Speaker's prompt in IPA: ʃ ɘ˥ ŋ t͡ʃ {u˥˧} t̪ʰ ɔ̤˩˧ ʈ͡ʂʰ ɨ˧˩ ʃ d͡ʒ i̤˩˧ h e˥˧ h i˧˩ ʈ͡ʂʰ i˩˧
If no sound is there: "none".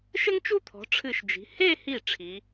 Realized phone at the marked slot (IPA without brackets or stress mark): u˥